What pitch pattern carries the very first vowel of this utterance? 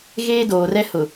high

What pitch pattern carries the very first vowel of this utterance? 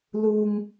low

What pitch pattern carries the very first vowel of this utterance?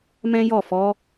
high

